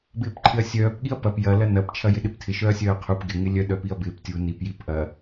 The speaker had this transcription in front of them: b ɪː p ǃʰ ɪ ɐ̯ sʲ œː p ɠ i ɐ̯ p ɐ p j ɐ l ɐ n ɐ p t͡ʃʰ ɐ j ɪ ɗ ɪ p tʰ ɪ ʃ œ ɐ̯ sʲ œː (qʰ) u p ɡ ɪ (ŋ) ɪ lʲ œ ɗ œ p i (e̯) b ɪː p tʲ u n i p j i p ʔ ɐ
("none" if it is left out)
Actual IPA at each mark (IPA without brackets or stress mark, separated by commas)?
qʰ, ŋ, ɐ̯